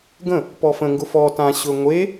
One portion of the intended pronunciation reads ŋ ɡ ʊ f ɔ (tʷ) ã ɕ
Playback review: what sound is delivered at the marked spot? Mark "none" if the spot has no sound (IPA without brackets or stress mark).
t